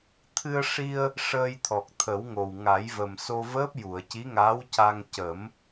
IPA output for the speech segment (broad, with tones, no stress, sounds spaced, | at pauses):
t̪ʰ ɨ˧ ə̯ ʂ i˧ ə̯ | ʂ əː˧ j t̪ʰ ɔ˨˩ k̚ t̪ʰ ə˨˩˦ w ŋ o˨˩ w ŋ a˨˩˦ j v ə˨˩ m s o˧ v əː˦˥ p̚ j u˨˩˨ ə̯ c i˧˥ ŋ aː˧˥ w c a˧ ŋ c ə˨˩˦ m